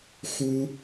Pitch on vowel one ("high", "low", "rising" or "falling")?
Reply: high